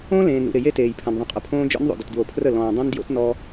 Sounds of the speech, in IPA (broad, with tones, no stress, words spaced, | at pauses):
õ˦ lẽː˨nɾṵ˨ɾɪ˨ je˦teː˨jpʰɐ̃˨n ðˤə̃˨qʼə˨pʰõː˦ d͡ʒɔ̰˦nðˤo̰˨d ə˨tdwo˨pʰrə˦˨ lɔ̃ː˨dˤẽ˦n djo̰˦tnɔ˦